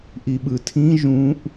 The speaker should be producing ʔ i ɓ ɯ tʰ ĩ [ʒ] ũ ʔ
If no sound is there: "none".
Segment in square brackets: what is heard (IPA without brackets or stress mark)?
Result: ʒ